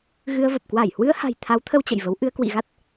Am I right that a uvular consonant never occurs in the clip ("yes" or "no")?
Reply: yes